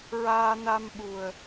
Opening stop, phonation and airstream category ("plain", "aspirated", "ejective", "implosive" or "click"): implosive